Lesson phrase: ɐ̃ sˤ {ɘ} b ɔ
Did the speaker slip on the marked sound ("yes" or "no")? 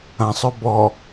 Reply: yes